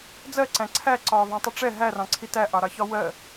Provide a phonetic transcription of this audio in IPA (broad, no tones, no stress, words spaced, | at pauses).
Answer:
d͡zɜǀæ̃ ǀʰæ ǀɒːvɑ̃tˤəʈ͡ʂɛ ɦærɑ̃ǀʰi tæʔɑɾɑçɒ wɜ